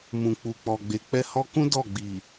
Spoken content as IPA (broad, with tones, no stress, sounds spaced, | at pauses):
m ũ˨ k͡p u˨ k͡p ɔ˨ ɡ͡b e˨ k͡p ɛ˧ h ɔ˧ k ũ˦ d ɔ˦˨ ɡ͡b i˨